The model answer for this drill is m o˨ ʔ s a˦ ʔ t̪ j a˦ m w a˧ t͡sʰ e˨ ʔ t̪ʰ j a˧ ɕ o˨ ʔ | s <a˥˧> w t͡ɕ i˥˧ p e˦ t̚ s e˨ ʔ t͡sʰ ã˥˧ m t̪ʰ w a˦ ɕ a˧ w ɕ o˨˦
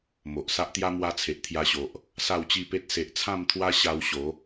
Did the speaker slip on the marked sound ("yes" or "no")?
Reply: no